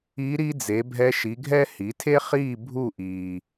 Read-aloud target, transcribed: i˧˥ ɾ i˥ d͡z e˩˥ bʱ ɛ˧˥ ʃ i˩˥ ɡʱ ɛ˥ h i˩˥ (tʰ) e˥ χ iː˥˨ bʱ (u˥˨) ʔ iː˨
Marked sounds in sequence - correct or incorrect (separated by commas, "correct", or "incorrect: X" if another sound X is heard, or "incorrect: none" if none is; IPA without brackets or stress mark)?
correct, correct